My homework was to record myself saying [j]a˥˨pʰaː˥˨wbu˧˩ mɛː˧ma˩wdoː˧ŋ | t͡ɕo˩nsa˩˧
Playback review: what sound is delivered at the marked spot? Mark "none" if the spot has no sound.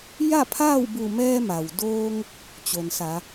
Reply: j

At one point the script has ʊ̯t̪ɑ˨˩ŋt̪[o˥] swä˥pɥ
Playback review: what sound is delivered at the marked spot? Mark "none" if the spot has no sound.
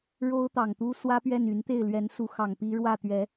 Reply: u˥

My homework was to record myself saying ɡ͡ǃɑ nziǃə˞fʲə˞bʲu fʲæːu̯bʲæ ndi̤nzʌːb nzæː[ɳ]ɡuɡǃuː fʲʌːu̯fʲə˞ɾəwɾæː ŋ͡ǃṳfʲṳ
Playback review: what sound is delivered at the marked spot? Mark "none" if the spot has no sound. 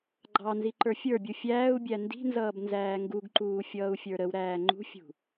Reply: ŋ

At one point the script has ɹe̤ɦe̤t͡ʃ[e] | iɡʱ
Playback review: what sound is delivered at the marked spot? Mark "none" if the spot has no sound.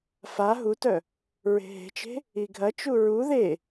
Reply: e̤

